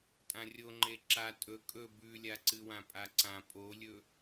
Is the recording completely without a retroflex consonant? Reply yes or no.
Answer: yes